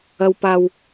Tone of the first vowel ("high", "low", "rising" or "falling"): low